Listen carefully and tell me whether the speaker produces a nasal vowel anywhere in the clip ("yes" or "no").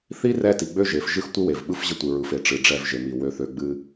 no